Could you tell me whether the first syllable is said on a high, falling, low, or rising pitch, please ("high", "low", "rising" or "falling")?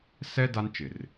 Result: high